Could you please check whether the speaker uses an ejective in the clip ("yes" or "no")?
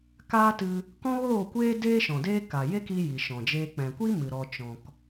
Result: no